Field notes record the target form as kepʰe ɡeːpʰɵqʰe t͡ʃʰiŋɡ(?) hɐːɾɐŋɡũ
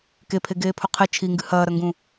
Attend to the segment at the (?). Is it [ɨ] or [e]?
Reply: ɨ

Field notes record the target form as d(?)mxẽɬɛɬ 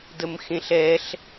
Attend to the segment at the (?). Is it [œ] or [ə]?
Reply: ə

